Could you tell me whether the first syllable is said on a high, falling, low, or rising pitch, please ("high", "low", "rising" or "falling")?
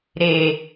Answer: low